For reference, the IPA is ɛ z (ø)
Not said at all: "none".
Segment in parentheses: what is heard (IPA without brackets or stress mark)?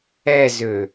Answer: ø